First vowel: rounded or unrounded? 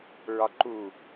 rounded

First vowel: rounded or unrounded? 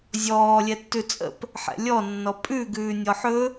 rounded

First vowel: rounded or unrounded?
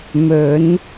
rounded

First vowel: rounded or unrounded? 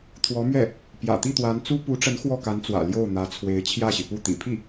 rounded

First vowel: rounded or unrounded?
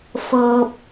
unrounded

